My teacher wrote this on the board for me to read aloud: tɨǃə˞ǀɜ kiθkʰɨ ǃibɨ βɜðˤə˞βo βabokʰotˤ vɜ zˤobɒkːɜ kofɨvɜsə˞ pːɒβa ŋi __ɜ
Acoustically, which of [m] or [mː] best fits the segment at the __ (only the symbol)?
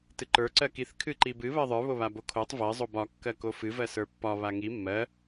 mː